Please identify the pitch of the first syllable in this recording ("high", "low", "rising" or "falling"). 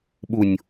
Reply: low